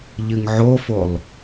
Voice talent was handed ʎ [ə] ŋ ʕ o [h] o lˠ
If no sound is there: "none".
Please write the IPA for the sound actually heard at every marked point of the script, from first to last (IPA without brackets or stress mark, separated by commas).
ɨ, f